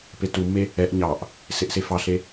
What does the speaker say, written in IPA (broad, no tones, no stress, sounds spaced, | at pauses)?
p e t u mː e | ɛ ʔ ɲ ɑ ʔ | s e ʔ s e f ɑ ɬ e